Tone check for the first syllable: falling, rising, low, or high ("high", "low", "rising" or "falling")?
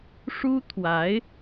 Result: high